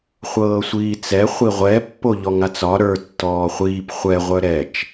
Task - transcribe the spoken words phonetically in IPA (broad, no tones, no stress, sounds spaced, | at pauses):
χʷ ɤː sʷ iː t͡s ɛ χʷ i ʁʷ ɛ pː o ʎ ɔ ŋ a t͡s ɒ ɾ ə˞ tː ɔː χʷ iː p χʷ ɛ ʁʷ œ ɾ ɛ t͡ʃ